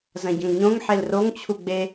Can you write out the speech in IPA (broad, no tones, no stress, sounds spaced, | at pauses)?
z ɐ̃ ɟ ɐ̃ ŋ ɲ õ ŋ ħ e l r o ŋ t͡ɕʰ u ɡ͡b e